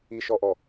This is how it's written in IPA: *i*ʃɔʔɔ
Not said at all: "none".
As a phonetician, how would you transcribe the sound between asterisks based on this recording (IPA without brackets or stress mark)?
i